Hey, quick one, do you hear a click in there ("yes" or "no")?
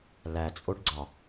yes